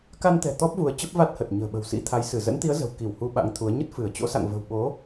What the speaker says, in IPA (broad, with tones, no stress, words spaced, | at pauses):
ka˧nt̪ɛ̤˨˩ t̪ɔ˦˥p̚vu˨˦ə̯ t͡ɕə˦˥p̚va˦˥t̚hə˨˩t̚ ɲə̤ː˨˩ɓə̤˨˩wsḭ˧˥t̪ʰa˨˦j sɨ˧˩zə̰˧˥nt̪i˨˦ə̯ zə̤˨˩wki˧˩w hu˧ɓa̰˧˥ŋt̪ʰu˨˦ə̯ ɲə˦˥t̚fɨ˧˩ə̯t͡ɕo̰˧˥ sa̰˧˨ŋvə̤˨˩wɓo˨˦